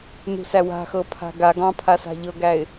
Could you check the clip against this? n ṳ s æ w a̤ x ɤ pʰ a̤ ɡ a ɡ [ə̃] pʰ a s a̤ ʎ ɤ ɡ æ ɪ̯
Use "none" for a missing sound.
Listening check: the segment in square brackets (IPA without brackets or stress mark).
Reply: ɑ̃